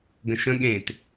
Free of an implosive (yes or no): no